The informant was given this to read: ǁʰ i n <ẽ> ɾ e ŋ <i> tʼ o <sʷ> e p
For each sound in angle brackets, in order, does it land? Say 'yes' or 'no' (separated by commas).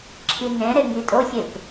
yes, yes, no